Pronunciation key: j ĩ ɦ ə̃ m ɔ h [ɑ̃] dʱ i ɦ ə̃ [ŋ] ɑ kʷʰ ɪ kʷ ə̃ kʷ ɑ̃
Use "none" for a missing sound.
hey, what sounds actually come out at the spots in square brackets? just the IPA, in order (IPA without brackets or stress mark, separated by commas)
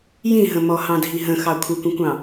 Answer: ɑ̃, x